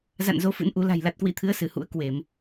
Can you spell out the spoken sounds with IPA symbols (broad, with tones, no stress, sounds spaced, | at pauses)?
z a̰˧˨ n z o˨˦ f ɨ̰˧˥ n ʔ u˨˦ l a̤˨˩ j l a˨˩ t̚ k w ḭ˧˥ t̪ʰ ɨ˨˦ ə̯ s ɨ˧˩ h ṵ˧˥ ə̯ k w e˧˩˨ m